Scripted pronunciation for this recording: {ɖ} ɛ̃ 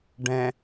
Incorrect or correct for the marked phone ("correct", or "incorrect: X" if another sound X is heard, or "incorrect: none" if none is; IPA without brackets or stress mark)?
correct